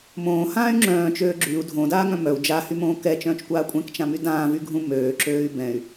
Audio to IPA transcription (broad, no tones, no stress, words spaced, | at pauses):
mõːhãːy̯ ŋ͡ǁœ̃ːt͡ʃøː ɡ͡ǁyu̯ dʱõdaːŋœ̃ mœu̯ d͡ʒahymõː kɛt͡ʃœ̃ːt͡ʃkʷaː kʷʼɛ̃kt͡ʃãmy dãːvyɡʱũ møːǁøːy̯ bɛ̃y̯